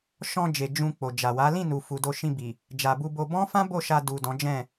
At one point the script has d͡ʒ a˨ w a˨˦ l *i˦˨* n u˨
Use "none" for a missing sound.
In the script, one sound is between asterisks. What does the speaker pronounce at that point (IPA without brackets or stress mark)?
ĩ˦˨